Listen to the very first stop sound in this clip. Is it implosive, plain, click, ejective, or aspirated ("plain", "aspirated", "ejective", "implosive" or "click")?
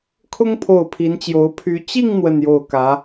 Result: aspirated